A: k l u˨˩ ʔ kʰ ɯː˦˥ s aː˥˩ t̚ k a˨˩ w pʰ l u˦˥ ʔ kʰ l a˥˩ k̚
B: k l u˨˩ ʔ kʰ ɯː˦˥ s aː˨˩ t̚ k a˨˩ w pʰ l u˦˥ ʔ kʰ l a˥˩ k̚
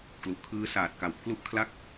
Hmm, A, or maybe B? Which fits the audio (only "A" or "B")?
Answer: B